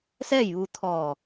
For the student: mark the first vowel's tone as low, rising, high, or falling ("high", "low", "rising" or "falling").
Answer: falling